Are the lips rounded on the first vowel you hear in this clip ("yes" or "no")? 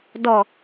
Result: yes